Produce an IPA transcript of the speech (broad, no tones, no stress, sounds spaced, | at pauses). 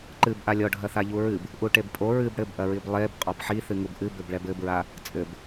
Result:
ǃ ɨ b ʔ a lʲ ɔ ɖʱ ɐ θ a ʎ u ɹ ɨ b | ʔ u ʈ e b pʼ o ɹ ɨ b ɽ ɘ b ʔ ɐ ɹ i b lˠ e b qʼ ɔ b ħ i θ ɨ ŋ u b ʔ ɨ b ɘ b ɭ ɛ b ɘ b ɹ a | t͡sʼ ɘ b